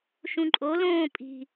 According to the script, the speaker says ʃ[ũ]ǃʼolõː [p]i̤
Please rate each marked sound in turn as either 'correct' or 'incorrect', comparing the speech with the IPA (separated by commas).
correct, incorrect